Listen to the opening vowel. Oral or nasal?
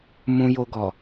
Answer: nasal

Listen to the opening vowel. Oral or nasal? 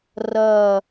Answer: oral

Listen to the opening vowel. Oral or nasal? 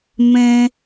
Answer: nasal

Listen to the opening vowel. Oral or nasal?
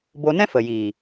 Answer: oral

